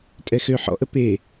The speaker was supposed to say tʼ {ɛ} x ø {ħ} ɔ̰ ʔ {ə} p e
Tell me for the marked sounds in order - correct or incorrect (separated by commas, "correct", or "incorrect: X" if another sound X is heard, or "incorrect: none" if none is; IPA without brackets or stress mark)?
correct, correct, correct